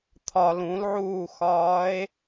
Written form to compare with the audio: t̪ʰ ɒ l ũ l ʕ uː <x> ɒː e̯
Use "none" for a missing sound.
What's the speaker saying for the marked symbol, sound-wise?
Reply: x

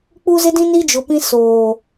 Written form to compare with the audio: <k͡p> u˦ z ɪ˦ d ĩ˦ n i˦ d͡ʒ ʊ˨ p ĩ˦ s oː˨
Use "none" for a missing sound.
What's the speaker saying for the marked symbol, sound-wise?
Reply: k͡p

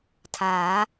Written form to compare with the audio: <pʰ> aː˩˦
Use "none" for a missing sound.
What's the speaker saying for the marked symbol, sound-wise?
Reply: tʰ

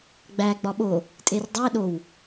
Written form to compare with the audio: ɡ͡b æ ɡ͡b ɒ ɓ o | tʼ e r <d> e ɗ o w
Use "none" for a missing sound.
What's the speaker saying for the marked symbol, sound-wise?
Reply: dˤ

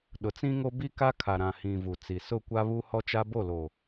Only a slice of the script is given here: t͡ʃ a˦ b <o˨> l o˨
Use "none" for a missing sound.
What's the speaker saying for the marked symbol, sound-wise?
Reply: o˦˨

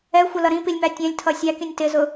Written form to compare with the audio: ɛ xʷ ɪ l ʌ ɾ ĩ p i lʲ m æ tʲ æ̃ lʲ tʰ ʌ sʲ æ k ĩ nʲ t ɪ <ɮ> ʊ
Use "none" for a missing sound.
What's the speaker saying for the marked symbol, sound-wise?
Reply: z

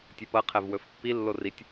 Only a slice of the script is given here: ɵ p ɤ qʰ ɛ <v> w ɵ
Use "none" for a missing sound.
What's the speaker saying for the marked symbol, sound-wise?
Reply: v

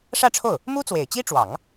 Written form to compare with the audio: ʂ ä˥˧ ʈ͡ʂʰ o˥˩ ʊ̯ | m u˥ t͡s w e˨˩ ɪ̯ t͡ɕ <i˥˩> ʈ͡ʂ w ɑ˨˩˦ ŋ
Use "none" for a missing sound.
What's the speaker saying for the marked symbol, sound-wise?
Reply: i˥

